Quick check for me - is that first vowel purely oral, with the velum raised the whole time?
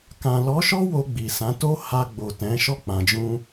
no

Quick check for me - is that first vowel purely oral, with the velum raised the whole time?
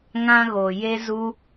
no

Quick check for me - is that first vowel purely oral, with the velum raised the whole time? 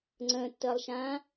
no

